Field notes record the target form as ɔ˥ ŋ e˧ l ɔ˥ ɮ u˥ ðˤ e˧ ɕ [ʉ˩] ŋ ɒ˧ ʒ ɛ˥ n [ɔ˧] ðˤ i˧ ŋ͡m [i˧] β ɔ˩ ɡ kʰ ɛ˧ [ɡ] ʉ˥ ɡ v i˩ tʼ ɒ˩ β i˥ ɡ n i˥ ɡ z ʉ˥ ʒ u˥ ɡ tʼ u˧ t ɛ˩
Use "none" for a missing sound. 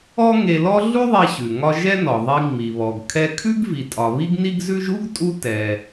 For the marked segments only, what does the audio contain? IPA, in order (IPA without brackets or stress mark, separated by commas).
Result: ʉ˩, ɔ˩, i˩, kʰ